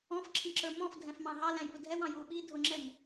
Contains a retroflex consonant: no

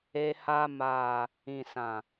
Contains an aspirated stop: no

